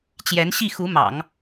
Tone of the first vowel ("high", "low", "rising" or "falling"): rising